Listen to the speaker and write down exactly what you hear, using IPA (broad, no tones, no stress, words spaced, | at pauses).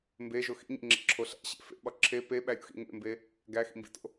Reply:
mbeʒo xḭɲḭŋ͡ǁḛǁʰo ɬæ̰ɕḛ fḛɓɒ ǁʰe peɓæɾʲṵxḭ ŋḛmbe | ɡæxḭmbḭto̰